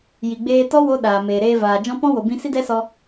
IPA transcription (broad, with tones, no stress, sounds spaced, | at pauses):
j i˨ ɡ͡b eː˧ t ɔ˦ w o˦ ɗ aː˨ m eː˨ ɾ eː˧ v aː˨ d͡ʒ ɔ̃˦ p ɔ̃˦ w o˨ b ĩ˧ s i˦ d ɛ˦ s ɔ˧